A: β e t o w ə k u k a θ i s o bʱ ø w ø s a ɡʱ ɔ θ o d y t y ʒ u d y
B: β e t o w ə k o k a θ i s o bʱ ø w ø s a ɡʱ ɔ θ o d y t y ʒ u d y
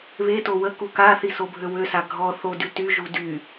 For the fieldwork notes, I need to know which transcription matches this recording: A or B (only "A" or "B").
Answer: A